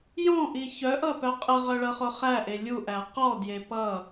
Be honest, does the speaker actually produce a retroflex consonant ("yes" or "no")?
yes